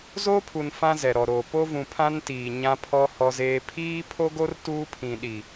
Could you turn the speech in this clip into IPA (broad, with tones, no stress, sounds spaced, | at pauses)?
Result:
z o˦ pʰ u˨ n f ã˦ z ɛ˨ ɾ ɔ˨ ɾ oː˨ p o˦ v ũ˨ pʰ ã˦ n t iː˨ ɲ ã˦ pʰ ɔ˦ h ɔ˦ z eː˦ pʰ iː˦ pʰ o˦ ɡ o˦ r t uː˦ pʰ ĩ˨ ɗ i˨